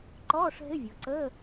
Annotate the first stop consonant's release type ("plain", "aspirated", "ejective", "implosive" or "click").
click